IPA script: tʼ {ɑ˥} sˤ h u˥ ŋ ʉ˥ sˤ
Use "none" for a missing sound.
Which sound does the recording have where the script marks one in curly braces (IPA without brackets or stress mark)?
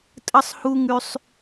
ə˥